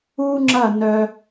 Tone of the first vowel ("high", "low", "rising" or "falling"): high